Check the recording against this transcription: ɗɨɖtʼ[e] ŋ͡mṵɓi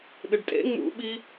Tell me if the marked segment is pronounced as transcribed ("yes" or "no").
no